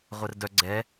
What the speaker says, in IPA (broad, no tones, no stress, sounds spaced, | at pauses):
ʁʷ ɛ r d œ ɡ͡ǀ ɛ